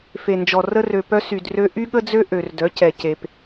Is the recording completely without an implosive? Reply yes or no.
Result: no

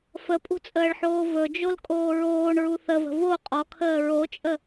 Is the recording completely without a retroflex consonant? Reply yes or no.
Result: no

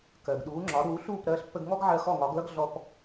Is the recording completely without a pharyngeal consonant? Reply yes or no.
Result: no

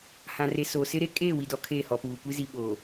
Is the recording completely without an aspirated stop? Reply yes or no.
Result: no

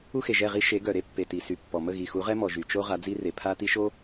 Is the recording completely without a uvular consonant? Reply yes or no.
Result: no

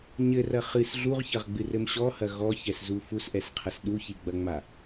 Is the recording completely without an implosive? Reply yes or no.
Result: no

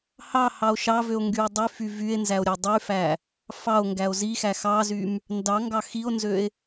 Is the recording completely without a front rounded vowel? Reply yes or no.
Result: no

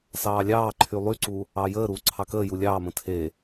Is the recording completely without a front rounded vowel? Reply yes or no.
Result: no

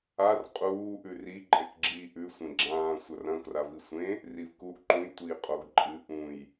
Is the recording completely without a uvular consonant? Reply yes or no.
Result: no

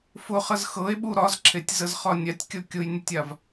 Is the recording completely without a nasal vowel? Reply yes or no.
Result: yes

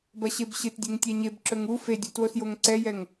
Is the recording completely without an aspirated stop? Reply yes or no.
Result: yes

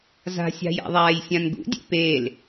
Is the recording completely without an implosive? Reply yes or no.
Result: yes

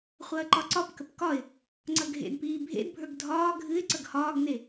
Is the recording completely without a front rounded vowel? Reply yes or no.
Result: yes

